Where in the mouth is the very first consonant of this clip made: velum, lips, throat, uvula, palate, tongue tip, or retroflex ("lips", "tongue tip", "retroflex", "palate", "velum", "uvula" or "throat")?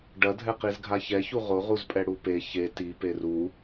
retroflex